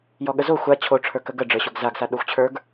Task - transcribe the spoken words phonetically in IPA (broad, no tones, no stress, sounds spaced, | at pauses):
j ɔ ɠ ə z o xʷ a t͡ɕʰ o ʈ͡ʂʰ ə˞ k ə ɡ ə ɖ͡ʐ ə˞ ɕ o ɡ z a ɡ s a ɗ o xʷ t͡ɕʰ ə˞ ɡ